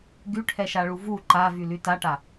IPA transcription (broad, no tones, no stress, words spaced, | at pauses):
ɡyʈʰɛʃaɭu vu ǃavyly taʈa